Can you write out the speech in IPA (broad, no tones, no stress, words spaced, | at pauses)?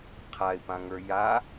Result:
qʰaɪ̯pãŋə˞ ja